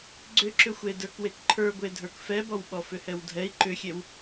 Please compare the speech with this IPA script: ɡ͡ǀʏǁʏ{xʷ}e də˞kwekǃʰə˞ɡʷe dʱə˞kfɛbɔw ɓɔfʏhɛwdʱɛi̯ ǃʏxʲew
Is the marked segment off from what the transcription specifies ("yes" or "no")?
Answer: no